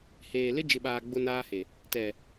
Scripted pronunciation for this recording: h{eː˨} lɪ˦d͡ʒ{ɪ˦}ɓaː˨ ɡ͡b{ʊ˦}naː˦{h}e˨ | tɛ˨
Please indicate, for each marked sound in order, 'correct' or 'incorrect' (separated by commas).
correct, incorrect, correct, correct